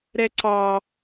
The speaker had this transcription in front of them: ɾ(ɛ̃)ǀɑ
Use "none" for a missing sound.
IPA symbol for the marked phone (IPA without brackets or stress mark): ɛ